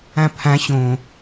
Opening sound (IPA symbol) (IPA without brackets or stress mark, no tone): ã